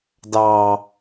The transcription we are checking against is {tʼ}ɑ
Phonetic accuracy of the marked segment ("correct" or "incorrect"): incorrect